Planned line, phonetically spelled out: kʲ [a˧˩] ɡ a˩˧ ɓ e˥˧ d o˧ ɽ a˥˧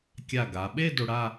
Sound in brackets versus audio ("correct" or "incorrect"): correct